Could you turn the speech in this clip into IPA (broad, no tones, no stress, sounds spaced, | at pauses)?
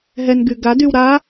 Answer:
ɦ ɛ n ɡ y ɡ a d y w ɾ a